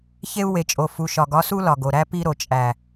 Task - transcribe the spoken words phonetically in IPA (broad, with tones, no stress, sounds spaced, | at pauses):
ç e˦ u̯ w e˨ t͡ʃʼ o˨ f u˨ ʃ ɒ˨ ɡ ɒ˦ s u˦ l ɒ˨ ɡ o˨ ɾ æ˦ p i˦ ɾ o˨ t͡ʃʼ æ˨